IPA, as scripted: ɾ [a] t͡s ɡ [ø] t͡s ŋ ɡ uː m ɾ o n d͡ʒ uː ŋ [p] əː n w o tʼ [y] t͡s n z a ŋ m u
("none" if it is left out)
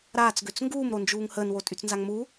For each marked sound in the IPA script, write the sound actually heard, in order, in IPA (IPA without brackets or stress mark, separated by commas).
aː, ø, h, y